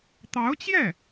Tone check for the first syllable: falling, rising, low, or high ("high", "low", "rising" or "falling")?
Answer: rising